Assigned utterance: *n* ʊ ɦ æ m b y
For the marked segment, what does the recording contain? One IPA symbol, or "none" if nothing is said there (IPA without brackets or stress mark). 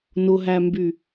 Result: n